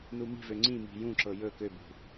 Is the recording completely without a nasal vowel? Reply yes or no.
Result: no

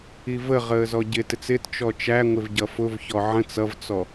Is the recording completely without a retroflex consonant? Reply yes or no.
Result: yes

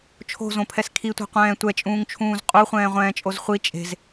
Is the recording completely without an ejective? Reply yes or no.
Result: no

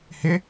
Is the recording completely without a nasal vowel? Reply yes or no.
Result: yes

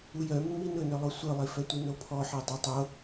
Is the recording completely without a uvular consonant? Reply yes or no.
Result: yes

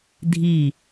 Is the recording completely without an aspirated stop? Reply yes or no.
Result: yes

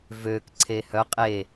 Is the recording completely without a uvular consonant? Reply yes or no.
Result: no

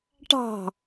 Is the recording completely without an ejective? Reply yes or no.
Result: yes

